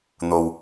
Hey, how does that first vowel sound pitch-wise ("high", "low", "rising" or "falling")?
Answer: low